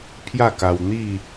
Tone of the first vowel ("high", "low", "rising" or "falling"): falling